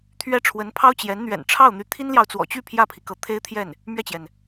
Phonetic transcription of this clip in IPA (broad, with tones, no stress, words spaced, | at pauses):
t̪ʰɥɛ˥˩ ʈ͡ʂʰwə˧˥npʰɑ˥ʊ̯ t͡ɕjɛ˧˥n n̪ɥɛ̰˨˩nʈ͡ʂʰɑ˥˩ʊ̯n̪y˧˥ t̪ʰi˥nljɑ˨ʊ̯t͡swɔ̰˨˩t͡ɕy˥˧ pʰjä˥˩pʰi˩ kɤ˧˥t̪ʰe˥ɪ̯t̪ʰjɛ˥˩n | mɥɛ˥˩t͡ɕjɛ˩n